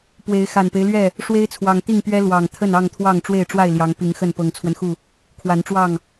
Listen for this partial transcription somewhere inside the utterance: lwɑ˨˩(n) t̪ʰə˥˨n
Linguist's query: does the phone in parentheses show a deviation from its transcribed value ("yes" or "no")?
yes